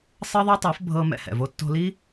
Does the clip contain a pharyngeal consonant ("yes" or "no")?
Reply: no